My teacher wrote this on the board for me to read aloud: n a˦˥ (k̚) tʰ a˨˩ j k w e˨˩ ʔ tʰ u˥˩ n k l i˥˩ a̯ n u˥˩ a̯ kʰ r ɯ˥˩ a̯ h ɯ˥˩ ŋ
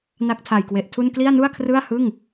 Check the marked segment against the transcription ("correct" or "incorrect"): correct